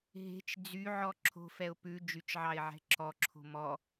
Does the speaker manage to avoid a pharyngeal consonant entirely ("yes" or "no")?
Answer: no